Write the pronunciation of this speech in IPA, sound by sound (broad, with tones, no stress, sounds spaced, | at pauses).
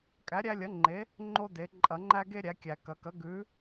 kʼ æ˨˥ ɾʲ æ˦ lʲ ɐ˨˥ ŋ͡ǃ e˨˥ | ŋ͡ǃ o˦ d e˩˧ ǃʼ ɐ˧˩˧ ŋ͡ǃ æ˦ ɡ e˦ ɾʲ æ˩˧ kʲ æ˩ k ɐ˩˧ k ɐ˨˥ ɡ ʉ˨˥